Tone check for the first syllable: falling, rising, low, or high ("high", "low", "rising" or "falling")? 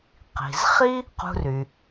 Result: low